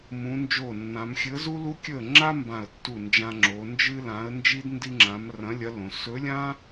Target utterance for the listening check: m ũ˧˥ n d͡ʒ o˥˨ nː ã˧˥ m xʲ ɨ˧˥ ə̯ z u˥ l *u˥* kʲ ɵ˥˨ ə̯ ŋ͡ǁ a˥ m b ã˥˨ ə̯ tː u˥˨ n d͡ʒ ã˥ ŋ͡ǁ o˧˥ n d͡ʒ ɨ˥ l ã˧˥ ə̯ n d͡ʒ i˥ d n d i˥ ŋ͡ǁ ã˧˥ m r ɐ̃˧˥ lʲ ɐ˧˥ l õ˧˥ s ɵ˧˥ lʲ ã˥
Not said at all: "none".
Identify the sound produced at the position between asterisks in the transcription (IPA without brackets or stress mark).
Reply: u˥